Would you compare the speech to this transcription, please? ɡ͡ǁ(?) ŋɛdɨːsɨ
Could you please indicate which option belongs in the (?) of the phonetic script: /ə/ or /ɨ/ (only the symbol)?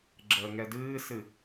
ə